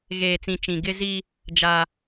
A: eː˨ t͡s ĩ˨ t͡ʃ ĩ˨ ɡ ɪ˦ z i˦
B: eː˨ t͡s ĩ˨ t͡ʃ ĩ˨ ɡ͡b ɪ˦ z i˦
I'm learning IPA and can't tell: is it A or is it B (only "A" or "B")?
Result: A